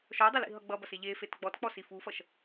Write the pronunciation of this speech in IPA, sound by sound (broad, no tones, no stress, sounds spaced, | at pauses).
ʃ ɔ dˤ ə l ḭ ɦ ʌ ɡ͡b ʌ b ʌ s e ʎ e f e t ɡ͡b ɔ t k͡p ɔ s i f u f ʌ ʃ